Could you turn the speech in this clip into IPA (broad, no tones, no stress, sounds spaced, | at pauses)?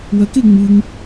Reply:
w ɐ k e ŋ͡m ɨ ŋ